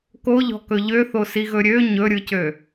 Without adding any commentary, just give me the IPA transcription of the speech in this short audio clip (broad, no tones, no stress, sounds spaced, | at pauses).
k o ʎ ɔ̤ k ɵ ʎ ø θ o s i ɣ ɵ ɾʲ ø ɲ ɵ ɾʲ ɯ c ø